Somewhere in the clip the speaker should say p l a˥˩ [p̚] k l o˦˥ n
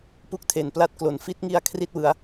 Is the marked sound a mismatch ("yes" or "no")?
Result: yes